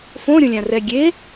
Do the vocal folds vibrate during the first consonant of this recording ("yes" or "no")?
no